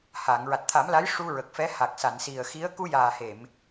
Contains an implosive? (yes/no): no